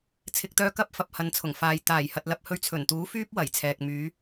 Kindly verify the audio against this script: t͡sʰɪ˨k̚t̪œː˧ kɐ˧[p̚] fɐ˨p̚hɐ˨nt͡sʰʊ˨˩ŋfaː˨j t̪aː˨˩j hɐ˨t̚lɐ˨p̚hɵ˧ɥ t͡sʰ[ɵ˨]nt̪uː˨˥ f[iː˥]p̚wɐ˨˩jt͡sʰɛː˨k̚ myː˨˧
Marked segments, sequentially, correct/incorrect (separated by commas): correct, incorrect, incorrect